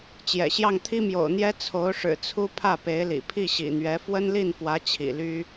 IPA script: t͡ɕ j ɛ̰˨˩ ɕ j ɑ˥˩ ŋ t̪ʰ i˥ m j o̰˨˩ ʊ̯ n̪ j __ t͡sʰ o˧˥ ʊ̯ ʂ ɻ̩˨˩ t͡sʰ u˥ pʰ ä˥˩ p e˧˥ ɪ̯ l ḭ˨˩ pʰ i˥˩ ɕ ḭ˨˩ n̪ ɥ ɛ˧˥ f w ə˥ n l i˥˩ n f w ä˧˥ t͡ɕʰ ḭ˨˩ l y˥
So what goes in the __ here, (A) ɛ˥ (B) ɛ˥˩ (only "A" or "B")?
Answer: A